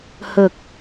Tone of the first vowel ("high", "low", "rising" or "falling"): low